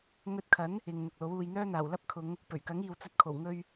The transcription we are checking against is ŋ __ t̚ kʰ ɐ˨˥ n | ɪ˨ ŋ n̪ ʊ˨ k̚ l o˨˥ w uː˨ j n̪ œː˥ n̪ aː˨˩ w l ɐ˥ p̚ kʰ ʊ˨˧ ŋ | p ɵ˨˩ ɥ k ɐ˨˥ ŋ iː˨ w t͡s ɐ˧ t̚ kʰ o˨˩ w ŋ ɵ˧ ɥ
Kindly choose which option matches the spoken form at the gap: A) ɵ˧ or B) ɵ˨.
A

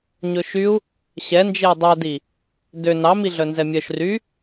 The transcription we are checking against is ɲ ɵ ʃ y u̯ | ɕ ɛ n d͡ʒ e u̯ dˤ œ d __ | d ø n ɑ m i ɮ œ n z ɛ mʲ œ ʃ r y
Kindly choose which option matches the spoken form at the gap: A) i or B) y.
A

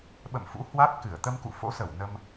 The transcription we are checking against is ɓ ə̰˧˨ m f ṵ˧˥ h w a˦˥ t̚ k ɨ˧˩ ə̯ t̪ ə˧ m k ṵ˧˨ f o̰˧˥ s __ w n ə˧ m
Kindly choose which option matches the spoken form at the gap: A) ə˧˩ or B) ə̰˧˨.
A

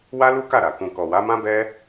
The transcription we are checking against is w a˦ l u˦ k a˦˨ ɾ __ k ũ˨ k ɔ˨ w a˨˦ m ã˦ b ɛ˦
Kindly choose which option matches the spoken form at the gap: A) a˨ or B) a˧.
A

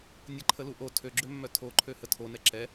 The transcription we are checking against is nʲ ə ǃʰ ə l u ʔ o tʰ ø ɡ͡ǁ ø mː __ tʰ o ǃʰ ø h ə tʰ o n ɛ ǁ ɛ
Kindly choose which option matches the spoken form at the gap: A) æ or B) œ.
B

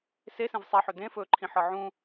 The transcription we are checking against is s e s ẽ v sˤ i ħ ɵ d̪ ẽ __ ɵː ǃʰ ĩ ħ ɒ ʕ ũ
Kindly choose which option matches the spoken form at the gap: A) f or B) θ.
A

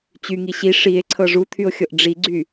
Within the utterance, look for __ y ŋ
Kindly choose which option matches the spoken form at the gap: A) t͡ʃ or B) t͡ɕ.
B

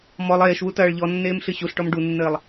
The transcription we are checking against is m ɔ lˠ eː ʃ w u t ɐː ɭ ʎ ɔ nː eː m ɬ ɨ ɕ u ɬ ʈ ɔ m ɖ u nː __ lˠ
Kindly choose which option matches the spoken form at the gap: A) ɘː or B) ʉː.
A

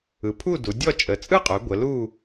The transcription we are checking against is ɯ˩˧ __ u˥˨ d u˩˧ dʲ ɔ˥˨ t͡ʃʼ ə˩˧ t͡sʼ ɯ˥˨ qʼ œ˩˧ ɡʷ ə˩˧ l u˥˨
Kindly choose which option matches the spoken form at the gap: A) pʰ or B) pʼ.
A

